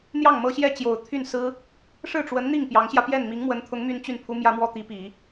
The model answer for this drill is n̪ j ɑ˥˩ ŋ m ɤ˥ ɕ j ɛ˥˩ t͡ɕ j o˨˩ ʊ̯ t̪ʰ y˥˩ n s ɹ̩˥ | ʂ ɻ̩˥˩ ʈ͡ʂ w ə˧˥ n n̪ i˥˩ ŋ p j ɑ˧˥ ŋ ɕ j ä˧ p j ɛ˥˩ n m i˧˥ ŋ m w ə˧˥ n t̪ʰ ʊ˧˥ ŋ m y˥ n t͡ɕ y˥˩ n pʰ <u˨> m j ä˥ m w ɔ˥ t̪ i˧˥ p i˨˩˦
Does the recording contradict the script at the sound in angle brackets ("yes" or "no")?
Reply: yes